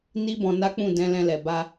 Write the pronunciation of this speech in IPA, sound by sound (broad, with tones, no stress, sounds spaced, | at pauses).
n i˦ b ɔ̃˧ n a˦ k͡p ũ˦˨ d ɛ̃˧ l ɛ̃˧ l ɛ˨ b a˧